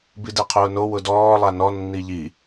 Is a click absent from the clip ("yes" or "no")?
yes